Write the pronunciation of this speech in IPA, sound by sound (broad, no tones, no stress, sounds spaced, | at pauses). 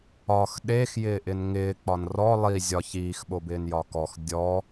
ɒ x ɗ e x j ɪː ʔ ɪ n ŋ ɪː k͡p ɒ n r ɔ lˠ i zʲ ɒ ç iː x ɓ o b ɪː n j ɒ k ɔ x dʲ ɔ